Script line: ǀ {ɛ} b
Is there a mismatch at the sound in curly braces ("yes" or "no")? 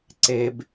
yes